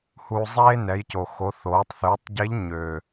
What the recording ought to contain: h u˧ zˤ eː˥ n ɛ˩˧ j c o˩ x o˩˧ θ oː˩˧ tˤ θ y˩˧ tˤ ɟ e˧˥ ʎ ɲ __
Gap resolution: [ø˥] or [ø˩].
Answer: ø˩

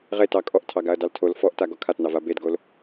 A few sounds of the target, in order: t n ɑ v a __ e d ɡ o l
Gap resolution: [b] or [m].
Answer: b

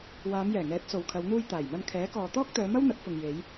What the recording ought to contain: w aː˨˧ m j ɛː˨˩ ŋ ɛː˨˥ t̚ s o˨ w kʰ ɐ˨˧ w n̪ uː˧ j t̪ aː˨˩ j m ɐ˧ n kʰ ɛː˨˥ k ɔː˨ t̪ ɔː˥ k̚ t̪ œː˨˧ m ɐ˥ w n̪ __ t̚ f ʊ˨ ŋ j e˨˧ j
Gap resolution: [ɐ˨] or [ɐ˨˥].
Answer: ɐ˨˥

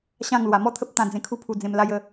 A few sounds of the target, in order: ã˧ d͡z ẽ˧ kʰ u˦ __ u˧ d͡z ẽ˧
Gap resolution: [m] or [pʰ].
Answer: pʰ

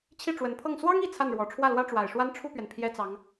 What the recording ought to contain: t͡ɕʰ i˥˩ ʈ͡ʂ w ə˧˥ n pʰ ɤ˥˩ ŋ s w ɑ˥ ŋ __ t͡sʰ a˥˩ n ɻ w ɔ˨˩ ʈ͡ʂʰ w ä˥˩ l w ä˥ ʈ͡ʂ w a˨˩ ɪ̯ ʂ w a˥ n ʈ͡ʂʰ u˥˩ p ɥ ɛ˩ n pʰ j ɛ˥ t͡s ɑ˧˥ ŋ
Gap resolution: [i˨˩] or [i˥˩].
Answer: i˨˩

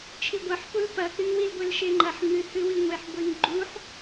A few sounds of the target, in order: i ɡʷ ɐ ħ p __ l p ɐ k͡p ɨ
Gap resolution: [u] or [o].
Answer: u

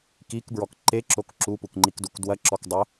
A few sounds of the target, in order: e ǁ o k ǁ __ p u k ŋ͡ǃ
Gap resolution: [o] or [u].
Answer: u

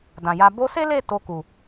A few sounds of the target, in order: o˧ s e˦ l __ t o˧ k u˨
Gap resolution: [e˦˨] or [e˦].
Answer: e˦˨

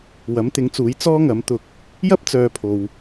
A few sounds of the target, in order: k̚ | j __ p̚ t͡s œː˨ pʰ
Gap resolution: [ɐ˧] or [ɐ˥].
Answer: ɐ˥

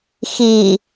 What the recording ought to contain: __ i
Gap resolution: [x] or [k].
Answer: x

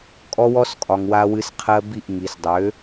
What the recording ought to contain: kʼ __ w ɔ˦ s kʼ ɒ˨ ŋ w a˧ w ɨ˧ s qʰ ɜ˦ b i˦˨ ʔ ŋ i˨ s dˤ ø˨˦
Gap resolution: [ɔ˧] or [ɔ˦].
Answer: ɔ˦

